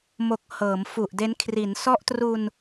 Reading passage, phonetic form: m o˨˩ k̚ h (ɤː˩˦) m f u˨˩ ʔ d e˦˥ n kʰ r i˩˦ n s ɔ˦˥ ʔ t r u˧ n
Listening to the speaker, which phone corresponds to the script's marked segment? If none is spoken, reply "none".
ɤː˩˦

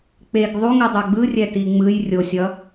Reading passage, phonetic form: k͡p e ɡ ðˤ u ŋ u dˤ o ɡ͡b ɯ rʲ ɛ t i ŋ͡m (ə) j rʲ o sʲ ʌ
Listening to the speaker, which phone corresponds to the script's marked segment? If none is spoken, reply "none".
ɯ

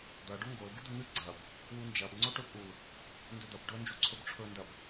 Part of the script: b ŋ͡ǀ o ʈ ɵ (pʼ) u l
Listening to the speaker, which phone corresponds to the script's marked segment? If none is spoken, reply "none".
pʼ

